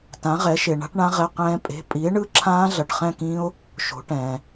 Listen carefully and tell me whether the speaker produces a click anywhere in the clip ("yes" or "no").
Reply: yes